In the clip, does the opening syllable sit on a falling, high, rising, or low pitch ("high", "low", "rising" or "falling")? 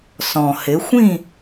low